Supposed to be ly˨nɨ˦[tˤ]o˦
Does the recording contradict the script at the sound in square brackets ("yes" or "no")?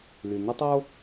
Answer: no